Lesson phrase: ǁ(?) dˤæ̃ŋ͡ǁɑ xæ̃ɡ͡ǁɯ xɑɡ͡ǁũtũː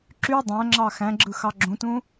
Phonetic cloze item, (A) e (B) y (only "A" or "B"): B